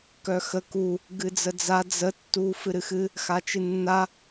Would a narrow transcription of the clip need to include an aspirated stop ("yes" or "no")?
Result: no